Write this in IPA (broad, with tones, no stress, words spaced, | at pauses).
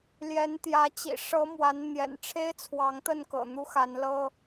ljɛ˨˦nt̪jä˨˦ t͡ɕḭ˨˩ ʂɤ˨˦ mwa˨˦nn̪jɛ̰˨˩n ʈ͡ʂʰe˦ɪ̯t͡sʰwɑ˨˦ŋt̪ə˥˨nkɤ̰˨˩ n̪u˦xa˨˦nlɤ˦